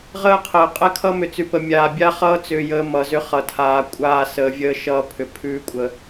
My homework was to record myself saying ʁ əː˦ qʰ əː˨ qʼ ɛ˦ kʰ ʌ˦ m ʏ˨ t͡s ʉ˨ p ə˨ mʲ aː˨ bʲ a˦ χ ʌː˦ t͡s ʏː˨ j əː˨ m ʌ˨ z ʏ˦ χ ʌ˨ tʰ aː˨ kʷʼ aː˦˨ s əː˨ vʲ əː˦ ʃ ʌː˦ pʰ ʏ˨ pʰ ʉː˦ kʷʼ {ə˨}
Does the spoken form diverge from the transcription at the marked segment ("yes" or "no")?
no